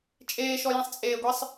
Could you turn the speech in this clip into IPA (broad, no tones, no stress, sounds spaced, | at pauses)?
t͡ʃʼ eː ʃ ɔ j ĩ sˤ t͡sʼ eː ɡʷ i sˤ